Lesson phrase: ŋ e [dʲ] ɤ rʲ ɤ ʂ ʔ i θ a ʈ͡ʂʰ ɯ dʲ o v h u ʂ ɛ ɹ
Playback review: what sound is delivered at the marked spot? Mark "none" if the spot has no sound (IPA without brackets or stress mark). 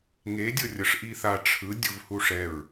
dʲ